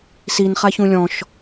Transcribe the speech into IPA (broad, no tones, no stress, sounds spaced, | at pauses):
s i n χ a ç ũ lʲ ɔ̃ ʃ